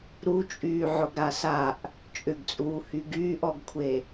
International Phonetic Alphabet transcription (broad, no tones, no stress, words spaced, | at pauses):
ɾut͡ʃʼyː ʕʊɡɾasaʔ | t͡ʃʼʏɡt͡sʼuː hyɡyːʔɔɡkʷʰe